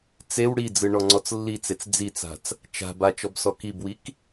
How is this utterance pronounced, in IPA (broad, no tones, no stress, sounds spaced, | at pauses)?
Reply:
t͡s e w ɽ i d͡z ɯ ɳ ɔ ŋ͡ǀ ɔ t͡s lː i t͡s e t͡s d͡z i t͡s a̤ t͡s | t͡ʃ a̤ b a t͡ʃ ɔ b s ɔ k i b w i k